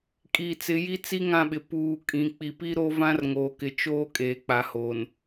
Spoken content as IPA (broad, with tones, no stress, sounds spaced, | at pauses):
kʼ iː˨ t͡s ɪ˨˦ j i˦ t͡s i˦ ŋ ã˦˨ ɓ ɪ˨ p uː˨ kʼ ĩ˨ k͡p i˨ p i˦ ɾ o˦ v ã˦ r ŋ oː˨ k ɪ˨ t͡ʃ oː˦ kʼ eː˨ k͡p a˨ h oː˨ n